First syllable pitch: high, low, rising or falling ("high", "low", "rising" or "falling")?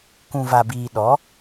low